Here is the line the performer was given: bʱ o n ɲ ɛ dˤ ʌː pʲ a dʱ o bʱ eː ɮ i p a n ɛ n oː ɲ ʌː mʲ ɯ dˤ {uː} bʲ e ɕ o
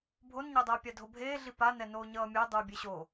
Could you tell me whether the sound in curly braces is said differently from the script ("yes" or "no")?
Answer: no